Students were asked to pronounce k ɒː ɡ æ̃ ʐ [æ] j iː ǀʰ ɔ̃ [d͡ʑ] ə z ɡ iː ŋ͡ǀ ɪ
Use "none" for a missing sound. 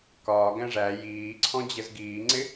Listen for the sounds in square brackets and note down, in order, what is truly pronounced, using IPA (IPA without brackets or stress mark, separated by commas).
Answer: æ, d͡ʑ